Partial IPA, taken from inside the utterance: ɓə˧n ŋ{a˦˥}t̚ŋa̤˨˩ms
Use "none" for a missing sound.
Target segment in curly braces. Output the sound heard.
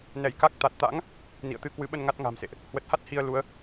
a˦˥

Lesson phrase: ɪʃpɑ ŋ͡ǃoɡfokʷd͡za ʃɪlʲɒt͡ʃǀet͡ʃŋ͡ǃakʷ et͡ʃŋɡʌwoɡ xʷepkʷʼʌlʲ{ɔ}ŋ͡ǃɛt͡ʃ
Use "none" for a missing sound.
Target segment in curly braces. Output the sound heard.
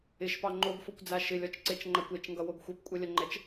ʌ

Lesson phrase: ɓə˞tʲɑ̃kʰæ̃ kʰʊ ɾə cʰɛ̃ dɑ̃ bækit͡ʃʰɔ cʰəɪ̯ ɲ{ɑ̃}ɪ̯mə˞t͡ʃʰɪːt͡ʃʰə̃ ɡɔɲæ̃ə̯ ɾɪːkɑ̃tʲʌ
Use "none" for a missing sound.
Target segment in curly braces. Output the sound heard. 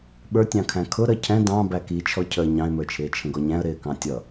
ɑ̃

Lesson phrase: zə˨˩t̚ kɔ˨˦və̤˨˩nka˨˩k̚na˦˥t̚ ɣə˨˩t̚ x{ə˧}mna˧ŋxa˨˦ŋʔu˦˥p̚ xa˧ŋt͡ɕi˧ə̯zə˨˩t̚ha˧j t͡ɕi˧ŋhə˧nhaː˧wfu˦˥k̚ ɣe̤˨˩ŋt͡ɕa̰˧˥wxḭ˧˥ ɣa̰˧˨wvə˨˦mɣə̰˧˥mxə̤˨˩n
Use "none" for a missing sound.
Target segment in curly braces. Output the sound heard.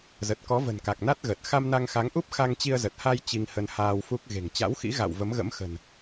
a˧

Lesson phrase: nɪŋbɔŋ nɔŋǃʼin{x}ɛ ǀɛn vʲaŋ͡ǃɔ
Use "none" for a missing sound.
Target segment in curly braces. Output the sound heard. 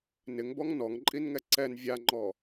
ŋ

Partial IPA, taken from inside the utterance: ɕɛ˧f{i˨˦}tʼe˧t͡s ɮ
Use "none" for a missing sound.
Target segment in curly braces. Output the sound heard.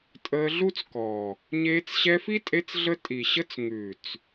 i˦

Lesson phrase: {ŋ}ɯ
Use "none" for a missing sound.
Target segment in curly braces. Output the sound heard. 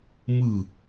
m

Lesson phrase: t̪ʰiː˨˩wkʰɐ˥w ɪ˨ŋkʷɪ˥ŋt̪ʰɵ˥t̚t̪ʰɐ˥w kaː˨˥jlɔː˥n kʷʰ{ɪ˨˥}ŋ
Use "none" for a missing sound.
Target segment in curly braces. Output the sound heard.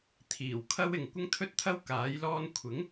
ɪ˨˥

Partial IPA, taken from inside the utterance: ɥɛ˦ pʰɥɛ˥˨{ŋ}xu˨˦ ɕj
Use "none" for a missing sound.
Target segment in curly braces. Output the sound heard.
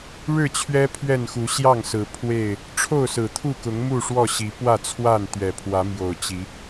n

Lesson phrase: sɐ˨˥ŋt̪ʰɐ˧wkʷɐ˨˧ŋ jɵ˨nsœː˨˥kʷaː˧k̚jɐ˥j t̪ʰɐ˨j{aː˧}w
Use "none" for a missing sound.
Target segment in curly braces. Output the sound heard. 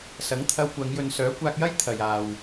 aː˨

